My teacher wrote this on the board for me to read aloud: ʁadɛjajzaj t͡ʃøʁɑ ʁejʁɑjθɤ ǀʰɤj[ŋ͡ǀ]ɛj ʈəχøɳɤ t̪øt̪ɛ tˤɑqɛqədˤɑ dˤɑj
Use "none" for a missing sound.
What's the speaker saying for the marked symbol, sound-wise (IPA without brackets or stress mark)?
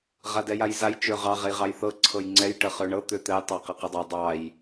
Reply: ŋ͡ǀ